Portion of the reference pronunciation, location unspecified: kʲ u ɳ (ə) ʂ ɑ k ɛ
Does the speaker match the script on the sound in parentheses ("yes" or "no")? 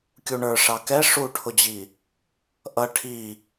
no